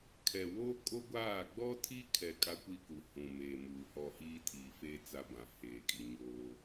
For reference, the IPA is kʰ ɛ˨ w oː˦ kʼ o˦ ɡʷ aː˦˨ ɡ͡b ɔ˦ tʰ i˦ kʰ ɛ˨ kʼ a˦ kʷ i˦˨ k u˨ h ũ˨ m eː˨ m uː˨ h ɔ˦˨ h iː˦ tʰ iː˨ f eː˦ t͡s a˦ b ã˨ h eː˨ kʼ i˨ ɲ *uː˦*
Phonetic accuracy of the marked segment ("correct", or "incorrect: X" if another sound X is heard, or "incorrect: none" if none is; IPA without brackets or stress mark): incorrect: oː˦